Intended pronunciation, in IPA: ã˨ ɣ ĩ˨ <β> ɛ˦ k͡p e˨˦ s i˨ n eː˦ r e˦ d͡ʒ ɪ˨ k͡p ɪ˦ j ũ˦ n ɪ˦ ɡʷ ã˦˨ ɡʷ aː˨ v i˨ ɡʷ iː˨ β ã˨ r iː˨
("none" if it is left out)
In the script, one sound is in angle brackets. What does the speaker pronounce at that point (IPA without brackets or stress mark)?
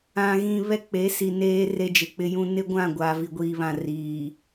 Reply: β